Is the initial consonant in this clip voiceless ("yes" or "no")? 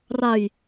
no